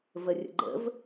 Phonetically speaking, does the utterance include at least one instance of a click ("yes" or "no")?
yes